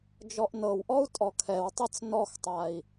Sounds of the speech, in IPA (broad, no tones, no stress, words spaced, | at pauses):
d͡ʒɔʔnɤwʔɔu̯ tʼɔkʰɛwtˤɤt͡s nɔxtˤai̯